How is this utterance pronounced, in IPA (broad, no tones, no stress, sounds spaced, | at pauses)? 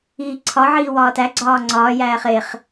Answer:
iː ǀʰ ɒ ʕ iː w ɒː t æ ɡ͡ǀ ɒː ŋ͡ǀ ɒː j æː χ e χ